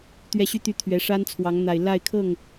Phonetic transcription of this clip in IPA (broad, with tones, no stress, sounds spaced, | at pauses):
t̪ ɥ ɛ˥˩ ɕ y˥ t̪ y˥˩ t̪ʰ ɥ ɛ˧˥ ʂ a˥ n t͡sʰ w ɑ˧˥ ŋ n̪ a˨˩ ɪ̯ l a˥˧ ɪ̯ kʰ ɤ˥˩ ŋ